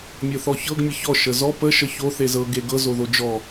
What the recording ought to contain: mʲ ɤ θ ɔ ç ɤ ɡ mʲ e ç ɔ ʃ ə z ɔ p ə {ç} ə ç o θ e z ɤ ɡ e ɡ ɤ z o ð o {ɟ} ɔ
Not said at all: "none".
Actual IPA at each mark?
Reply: ʃ, d͡ʒ

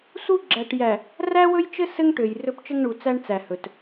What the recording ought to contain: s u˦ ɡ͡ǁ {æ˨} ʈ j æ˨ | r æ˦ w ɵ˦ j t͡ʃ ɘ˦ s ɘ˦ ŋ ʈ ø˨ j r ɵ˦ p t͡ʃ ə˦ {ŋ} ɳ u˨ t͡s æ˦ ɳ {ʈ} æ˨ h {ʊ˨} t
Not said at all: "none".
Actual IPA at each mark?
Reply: æ˨, ŋ, t͡s, ɵ˨

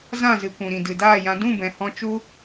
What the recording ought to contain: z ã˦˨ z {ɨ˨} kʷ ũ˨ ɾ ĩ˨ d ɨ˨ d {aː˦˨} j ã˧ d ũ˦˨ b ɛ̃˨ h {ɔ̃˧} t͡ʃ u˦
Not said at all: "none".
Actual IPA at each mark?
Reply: ɨ˨, aː˦˨, ɔ̃˧

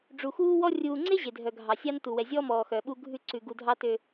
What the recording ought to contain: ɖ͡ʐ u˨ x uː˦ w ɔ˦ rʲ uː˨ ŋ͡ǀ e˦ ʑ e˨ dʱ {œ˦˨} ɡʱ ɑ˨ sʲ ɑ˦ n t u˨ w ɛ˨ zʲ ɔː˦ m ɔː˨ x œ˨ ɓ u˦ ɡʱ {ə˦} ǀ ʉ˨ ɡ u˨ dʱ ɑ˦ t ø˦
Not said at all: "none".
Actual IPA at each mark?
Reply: œ˨, ʉ˦

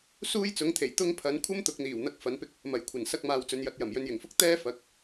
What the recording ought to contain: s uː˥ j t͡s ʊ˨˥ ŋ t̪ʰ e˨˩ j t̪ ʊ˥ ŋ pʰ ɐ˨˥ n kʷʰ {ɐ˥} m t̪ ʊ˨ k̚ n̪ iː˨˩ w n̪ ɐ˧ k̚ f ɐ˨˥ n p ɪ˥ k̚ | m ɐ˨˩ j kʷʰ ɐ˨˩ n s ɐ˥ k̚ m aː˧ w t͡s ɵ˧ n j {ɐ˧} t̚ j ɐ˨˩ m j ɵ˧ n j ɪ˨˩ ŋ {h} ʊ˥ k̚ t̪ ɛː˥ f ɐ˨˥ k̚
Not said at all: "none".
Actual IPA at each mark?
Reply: ɐ˥, ɐ˧, f

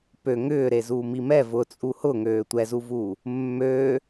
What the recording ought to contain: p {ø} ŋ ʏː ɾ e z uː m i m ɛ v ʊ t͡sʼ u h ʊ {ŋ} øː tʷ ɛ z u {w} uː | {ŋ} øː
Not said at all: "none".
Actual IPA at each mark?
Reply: ø, ŋ, v, mː

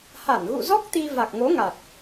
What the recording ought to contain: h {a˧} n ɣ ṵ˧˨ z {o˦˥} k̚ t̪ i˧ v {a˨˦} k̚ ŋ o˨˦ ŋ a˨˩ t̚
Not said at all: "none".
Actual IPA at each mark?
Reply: a˧˩, ɔ˦˥, a˨˩

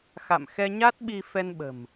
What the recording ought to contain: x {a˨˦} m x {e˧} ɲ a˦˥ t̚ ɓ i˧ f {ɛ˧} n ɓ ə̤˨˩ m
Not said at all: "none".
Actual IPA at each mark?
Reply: a̰˧˨, ɛ˧, ɛ˧

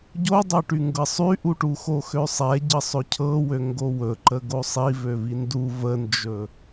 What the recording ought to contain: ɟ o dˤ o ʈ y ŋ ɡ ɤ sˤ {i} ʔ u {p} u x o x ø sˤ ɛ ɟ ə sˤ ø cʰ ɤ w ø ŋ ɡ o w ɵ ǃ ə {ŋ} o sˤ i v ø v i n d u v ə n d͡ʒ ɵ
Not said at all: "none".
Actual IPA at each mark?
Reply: y, ʈ, ɡ

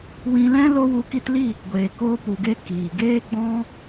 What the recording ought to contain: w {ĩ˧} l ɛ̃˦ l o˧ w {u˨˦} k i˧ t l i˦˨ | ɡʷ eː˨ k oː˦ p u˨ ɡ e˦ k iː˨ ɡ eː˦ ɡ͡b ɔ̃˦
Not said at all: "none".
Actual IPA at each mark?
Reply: ĩ˧, u˨˦

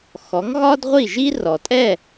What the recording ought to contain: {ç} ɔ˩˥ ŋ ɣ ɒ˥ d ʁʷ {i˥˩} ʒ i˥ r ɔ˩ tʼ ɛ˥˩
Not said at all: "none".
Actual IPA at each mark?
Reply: x, i˥˩

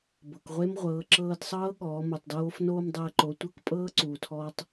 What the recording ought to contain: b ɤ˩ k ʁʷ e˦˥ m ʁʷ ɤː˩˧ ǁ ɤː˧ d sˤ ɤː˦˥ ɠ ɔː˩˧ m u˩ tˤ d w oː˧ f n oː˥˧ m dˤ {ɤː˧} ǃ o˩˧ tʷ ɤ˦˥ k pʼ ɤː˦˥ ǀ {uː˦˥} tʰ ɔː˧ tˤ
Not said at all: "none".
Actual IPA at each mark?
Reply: ɤː˧, uː˩

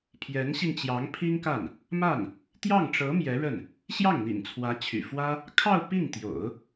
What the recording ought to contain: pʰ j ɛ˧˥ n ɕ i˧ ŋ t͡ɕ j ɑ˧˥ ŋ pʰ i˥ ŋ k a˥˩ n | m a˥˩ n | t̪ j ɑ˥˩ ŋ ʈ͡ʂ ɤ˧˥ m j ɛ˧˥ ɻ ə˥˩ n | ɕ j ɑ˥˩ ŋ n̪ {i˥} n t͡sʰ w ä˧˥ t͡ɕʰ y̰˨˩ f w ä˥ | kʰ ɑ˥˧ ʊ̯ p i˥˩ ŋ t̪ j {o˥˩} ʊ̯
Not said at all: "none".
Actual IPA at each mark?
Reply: ḭ˨˩, o̰˨˩˦

